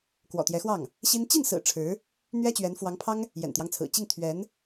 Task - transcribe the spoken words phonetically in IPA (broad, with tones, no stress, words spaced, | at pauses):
kwɔ̰˨˩t̪jɛ˧˥xwɑ˥˩ŋ | ɕi˥n t͡ɕi˥˩nsɹ̩˨˩ ʈ͡ʂʰɻ̩˧˥ | n̪ɥɛ˥t͡ɕɥɛ˧˥nfwɑ˧˥ŋpʰɑ˥ŋ | jɛ̰˨˩nt̪jɑ˦ŋt͡sʰɹ̩˨˩ t͡ɕi˥˩ŋt̪ʰɥɛ˧˥n